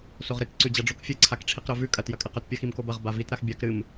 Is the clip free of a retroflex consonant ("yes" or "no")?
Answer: no